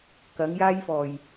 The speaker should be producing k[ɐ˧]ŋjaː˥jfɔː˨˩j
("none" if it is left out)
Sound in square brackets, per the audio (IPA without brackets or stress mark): ɐ˨˥